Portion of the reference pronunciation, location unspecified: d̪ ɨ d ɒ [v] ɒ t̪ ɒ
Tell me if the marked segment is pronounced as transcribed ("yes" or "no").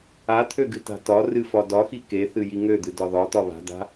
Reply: no